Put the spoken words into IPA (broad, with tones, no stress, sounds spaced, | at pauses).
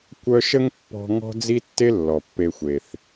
kʷ œ˦ ʃ ə˥ ŋ pː ɔ̤˦ ŋ ɔ̤˦ d͡z i˦ tː e˦ lː ɔ˩ pː e˨ xʷ e˩ θ